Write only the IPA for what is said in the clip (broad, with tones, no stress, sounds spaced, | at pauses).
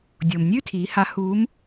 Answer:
dʲ o˩ m nʲ ʉ˥ tʰ iː˩˧ h a˧˥ h uː˧˥ m